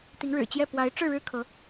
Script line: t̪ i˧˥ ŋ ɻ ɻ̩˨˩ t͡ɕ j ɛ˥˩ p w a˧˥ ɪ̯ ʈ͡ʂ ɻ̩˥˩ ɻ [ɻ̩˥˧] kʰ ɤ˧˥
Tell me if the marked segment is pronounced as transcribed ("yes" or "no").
no